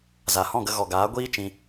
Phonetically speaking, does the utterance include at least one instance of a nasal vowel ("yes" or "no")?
yes